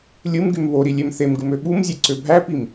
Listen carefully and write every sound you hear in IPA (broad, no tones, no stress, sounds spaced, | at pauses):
lʲ ɯ m ɡ y m β o ɾ i lʲ e m θ e m ɡ ɯ m ø ɓ u m zʲ e ǀ ø bʱ æ p i m